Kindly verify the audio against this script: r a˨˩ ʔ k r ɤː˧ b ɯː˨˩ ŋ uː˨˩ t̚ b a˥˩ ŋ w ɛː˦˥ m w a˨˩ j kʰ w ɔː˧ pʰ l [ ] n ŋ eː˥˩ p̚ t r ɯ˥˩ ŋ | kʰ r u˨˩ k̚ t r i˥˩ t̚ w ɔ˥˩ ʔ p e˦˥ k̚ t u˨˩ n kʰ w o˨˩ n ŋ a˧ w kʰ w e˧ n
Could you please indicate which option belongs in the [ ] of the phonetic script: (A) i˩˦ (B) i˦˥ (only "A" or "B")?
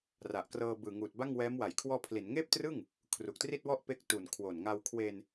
A